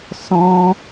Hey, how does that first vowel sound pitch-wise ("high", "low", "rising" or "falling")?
high